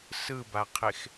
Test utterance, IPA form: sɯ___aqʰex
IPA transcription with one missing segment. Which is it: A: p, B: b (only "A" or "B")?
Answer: B